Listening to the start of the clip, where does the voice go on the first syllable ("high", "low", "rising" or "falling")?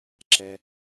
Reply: low